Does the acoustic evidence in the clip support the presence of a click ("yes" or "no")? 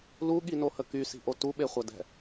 no